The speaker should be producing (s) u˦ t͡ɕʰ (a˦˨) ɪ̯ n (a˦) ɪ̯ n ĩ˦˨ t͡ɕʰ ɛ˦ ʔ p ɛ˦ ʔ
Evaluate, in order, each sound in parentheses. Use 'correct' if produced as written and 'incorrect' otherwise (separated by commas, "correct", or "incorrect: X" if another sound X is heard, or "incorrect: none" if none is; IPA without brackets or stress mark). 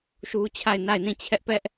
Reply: incorrect: ʃ, correct, incorrect: a˦˨